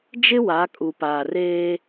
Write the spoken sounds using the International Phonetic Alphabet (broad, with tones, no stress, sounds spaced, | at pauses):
d͡ʒ ɪ˦ w a˨˦ kʼ u˨ p aː˨ r eː˦